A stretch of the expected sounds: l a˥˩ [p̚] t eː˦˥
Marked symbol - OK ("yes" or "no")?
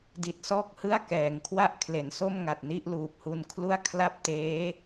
yes